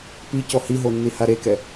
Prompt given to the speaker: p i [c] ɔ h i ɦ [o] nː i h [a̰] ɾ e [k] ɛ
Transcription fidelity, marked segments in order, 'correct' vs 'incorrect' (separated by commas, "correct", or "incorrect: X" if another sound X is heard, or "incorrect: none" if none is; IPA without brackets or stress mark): correct, correct, incorrect: a, correct